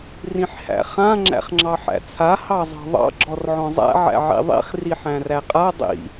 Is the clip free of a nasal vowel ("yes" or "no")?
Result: no